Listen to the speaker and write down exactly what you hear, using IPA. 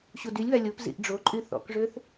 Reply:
ɕudylʲβa lʲop zḭʔɖ͡ʐoǃʼy θɔ̰kʐøθ

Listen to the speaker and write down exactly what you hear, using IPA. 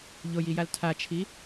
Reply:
ʎojijal tʰat͡ʃʰi

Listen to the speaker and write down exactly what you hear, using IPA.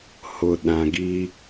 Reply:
hʊ˨ɗã˨ɡi˦

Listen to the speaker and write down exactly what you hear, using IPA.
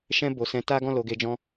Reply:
ʃɛ̃˧ bo˨sɛ̃˨˦ ta˦ɡɔ̃˦˨ lo˨˦ɡe˧d͡ʒɔ̃˦

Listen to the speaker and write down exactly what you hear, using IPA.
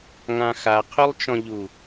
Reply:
ŋãxa qʰylˠt͡ʃɔ̃ʎu

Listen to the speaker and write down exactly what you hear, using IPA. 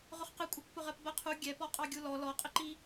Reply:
ʁʊχqɪkʷʼʌkʷ pʊʁɜpbɜqʰu ɡʲɛpɔ qʼɑɡʲulɔ lɔqʼɪǃi

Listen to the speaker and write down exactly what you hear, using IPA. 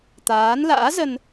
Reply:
t̪aː˨˦nla̰ː˧˥zə˧n

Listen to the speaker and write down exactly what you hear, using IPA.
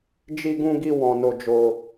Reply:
d͡ʒi˧ɡũ˧ɡi˧ wɔ̃˧no˧d͡ʒo˧

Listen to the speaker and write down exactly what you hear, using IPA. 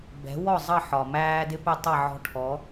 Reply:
bɛ̤˨˦wɔ˦˨ zˤʌ˦˨ ħɒ˨mæː˦dɪ˦ pɛ˦tˤʌ˦˨ʕɔ̤˦ ʈʰɔ˨˦

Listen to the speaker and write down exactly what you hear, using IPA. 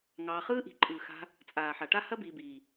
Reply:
ŋɑː˧χɯː˦ ʔi̤˨ǃʼɯː˨xa̤˧ | t͡sʼaː˨ħa˨ʈa˦ hɐ˦biː˨biː˨

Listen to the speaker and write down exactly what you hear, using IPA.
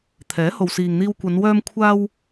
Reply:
t̪ʰɛː˨˥ho˨wsiː˨ŋ n̪iː˧wkʷɐ˨˧n wœː˧mkʷʰaː˧w

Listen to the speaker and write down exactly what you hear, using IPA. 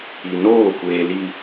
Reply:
i˨noː˦˨kʷeː˨ li˨

